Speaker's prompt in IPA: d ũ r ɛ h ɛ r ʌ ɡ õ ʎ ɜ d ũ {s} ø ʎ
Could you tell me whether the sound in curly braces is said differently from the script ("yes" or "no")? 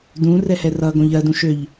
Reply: yes